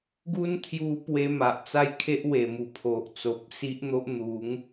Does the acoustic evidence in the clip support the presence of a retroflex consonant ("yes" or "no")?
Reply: no